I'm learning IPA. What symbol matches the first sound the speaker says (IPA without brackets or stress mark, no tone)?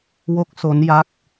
w